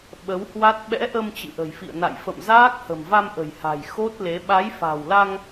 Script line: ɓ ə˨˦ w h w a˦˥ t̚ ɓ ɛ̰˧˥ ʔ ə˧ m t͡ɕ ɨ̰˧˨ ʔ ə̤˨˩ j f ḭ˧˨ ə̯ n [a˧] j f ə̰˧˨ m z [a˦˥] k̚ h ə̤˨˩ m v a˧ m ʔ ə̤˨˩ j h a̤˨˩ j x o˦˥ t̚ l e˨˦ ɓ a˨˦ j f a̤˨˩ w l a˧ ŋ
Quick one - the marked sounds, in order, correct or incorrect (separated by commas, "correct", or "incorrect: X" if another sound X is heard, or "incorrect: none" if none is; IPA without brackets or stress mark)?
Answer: incorrect: a̰˧˨, incorrect: aː˦˥